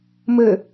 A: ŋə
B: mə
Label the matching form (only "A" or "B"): B